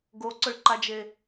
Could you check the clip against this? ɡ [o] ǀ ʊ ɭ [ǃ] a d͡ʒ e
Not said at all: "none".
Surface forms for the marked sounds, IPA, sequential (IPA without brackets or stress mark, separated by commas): o, ǃ